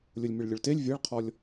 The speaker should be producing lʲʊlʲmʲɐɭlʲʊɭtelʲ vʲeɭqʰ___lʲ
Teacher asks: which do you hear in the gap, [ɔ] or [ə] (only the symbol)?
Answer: ɔ